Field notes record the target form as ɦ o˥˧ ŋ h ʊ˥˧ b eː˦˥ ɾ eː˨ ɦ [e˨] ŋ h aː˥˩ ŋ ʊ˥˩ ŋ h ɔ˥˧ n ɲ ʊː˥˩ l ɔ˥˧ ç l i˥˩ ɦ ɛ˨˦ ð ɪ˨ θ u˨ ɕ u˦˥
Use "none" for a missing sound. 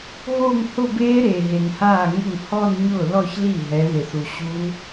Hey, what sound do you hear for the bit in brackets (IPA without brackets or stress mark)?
e˨